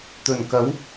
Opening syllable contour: low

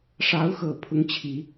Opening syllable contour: rising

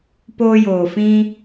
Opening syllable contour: high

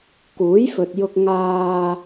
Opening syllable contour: rising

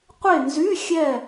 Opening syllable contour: falling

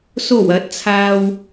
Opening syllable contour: low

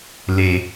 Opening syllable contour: low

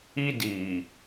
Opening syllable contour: high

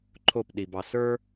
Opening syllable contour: falling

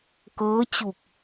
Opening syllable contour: rising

